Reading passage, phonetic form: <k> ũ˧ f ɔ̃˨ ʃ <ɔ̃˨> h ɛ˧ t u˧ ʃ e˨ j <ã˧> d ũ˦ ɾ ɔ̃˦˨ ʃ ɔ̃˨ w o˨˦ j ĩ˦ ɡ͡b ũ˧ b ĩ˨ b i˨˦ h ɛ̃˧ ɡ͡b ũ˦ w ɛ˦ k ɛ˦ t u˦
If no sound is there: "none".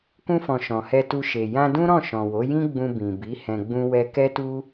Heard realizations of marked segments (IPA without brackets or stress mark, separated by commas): k, ɔ̃˨, ã˧